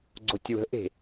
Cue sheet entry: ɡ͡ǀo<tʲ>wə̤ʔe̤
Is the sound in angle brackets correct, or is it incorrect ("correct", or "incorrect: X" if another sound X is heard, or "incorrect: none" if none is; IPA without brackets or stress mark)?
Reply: correct